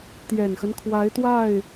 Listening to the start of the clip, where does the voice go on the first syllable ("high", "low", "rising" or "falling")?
low